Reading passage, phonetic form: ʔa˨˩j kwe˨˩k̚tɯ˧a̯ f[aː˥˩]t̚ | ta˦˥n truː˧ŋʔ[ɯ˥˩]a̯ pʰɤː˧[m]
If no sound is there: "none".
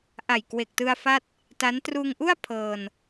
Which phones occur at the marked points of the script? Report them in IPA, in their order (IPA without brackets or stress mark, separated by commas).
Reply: a˥˩, u˥˩, n